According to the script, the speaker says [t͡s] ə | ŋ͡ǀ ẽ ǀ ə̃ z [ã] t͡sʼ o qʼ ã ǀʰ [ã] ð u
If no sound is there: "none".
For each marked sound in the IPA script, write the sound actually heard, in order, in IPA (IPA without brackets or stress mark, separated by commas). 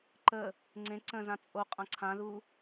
ǃ, ã, ã